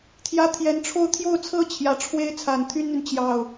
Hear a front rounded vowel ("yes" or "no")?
yes